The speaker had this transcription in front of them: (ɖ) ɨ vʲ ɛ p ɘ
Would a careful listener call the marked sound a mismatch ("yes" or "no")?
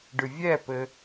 no